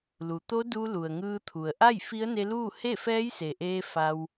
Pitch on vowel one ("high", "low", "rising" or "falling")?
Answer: low